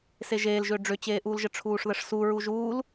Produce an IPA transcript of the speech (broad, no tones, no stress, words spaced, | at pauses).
seʒeːlʒʏː ɖ͡ʐʏt͡ɕeːʔuːlʒə ʈ͡ʂʰuːʂðəʂsu ɹuʒuːl